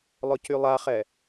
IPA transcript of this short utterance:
lˠʊcylˠaχɛ

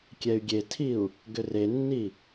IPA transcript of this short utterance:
kʲɛy̯ɡʲetʰiu̯ | ɡʏrenːi

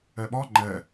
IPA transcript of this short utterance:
ɛɓɒ ŋ͡ǃɛ

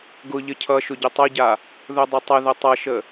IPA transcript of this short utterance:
ɡʊʎə cʰʌʃʊ ɟʊtˤʌɟa | ðʊdˤətˤəðə tˤʌʃə

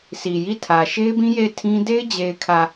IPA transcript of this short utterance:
sʰi˨ji˦˨tʰä˨ ʃe˦ɪ̯bĩ˦ je˦˨ɪ̯ tʰĩ˦ de˦ɪ̯d͡ʑe˨ɪ̯kʰä˨

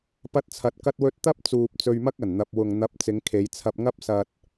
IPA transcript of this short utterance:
pɐ˥t̚t͡sʰɐ˧t̚kɐ˥t̚wɵ˥t̚ t̪ɐ˥p̚t͡suː˨p̚ t͡sɵ˧ɥmɐ˥k̚ɐ˨˩nn̪ɐ˨p̚ wʊ˨ŋn̪ɐ˨˥p̚ t͡sɪ˨˧ŋkʰe˨˧jt͡sʰɐ˧p̚ŋɐ˥p̚ sɐ˧t̚

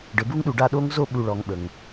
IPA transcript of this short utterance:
ɖɘ˨bu˦ŋɗu˨ɖa˦˨ ɗo˦ŋzo˦˨ɓu˨ ɭɔ˨ŋɓə˨ŋ

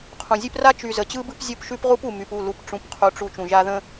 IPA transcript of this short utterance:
qʰũ˨zʲʉ˦p ra˦t͡ʃy˨ zə˨t͡ɕɯ˦bɯ˦p zʲo˦pʃʉ˦p ʁu˦pu˨ my˨pu˦˨ lu˦p ʈ͡ʂũ˦˨pqʰu˦ʈ͡ʂu˦ t͡ʃũ˨ʒa˦ðə̃˦

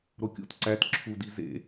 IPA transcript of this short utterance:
ɾokʲṵt ǀæt ǁʰudi zḛ

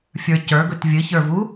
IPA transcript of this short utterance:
fʲə˞cə˞ɡɵt vʲɨçə˞vu

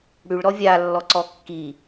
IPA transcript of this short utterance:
ɽyɭɾɔ vʲalːɔǀɔ kːi

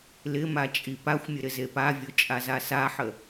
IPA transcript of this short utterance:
lɪma t͡ʃʼipaxʷmʲə ɾɪzepavʲo t͡ʃʼazasaħə

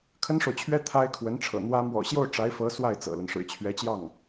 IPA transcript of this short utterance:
kʰə˥nʂo˨ʊ̯t͡ɕʰɥɛ˥ t̪ʰa˥ɪ̯kʰwə˧˥nʈ͡ʂʰɤ̰˨˩n̪wä˥ mwɔ̰˨˩ɕjo˥˩ʊ̯ ʈ͡ʂa˧˥ɪ̯fɤ˧˥ swa˥˩ɪ̯ t͡sɤ̰˨˩lə˦n ʂɻ̩˨˩t͡ɕʰɥɛ˧˥t͡ɕjɑ˥˩ŋ

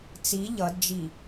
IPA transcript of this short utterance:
t͡si ʎʌdd͡ʒi

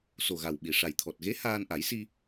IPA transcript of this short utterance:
so˨˩ɣa˨˩w ɓi˨˩ʂa˨˩j t̪ʰɔ˨˩t̚ɣe˧˥ haː˧nʔa˨˩˦jsi˧

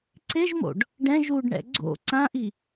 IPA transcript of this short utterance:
ǀeʒmo̰ɖ | ɖɛ̃ ʒuɖɳɛ̰ ɡ͡ǀo̰ ǀãʔi

